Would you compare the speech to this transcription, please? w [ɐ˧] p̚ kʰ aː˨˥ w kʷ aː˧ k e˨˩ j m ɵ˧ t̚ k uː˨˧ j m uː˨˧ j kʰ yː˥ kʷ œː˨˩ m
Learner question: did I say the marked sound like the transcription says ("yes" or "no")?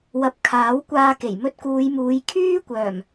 no